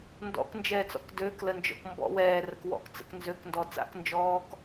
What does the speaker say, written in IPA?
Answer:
n d ɔ̰ k n d͡ʒ ɛː t͡s ɔ̰ k d øː k l ə n d͡ʒ ɔ̰ k m b ɔ̰ w ɛː r ə k w ɔ̰ k t͡s ə̰ k n z ø k n d ɔ t͡s a̰ k n d͡ʒ ɔː k

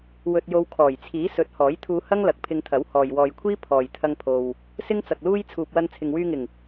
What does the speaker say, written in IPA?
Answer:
w ɵ˧ t̚ j o˧ w kʰ ɔː˨˩ j t͡sʰ iː˨˥ s ɵ˨˥ t̚ h ɔː˨˥ j t̪ʰ uː˧ h ɐ˥ ŋ l ɐ˨ k̚ pʰ ɪ˧ ŋ t̪ʰ ɐ˨˥ w h ɔː˨ j w ɔː˨ j kʷʰ iː˥ pʰ ɔː˨ j t̪ʰ ɐ˧ ŋ pʰ o˨ w | s ɪ˥ ŋ t͡s ɐ˨ k̚ l uː˥ j t͡sʰ uː˧ p̚ w ɐ˥ n t͡sʰ ɪ˨ ŋ w yː˧ ŋ ɪ˨˩ ŋ

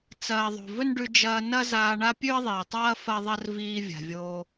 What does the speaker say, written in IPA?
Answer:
t͡s ɐː˨ ðˤ o̤˨ v ɵ˦ n ɖ ʉ˧ d͡ʒ ɐː˧ n ɐ˦ z aː˧ ɳ a˦ pʲ ʉ˦ ə̯ ðˤ iː˨ tˤ ɐː˦ f ɐ˦ ðˤ ɐ˦ r v iː˧ vʲ a̤˨ vʲ oː˧

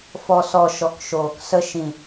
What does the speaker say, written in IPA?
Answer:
f ɔ˨ s ɔ˨ ʃ ɔ˨ k ʃ oː˨ k s ə˧ ʃ ĩ˨

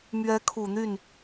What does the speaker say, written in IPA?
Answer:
m ɥ ɛ˧˥ kʰ u˨˩ n̪ y˥˩ n

